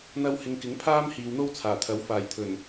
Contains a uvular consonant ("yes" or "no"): no